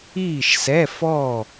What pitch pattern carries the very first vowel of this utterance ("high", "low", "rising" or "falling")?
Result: falling